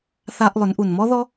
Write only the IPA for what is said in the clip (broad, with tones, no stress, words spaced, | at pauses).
θa˧ʔlˠʏ˩˧n ʔu˩nmɔ˥ðɔ˥